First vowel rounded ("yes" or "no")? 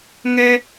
no